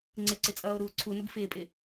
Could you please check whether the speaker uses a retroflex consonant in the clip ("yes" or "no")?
no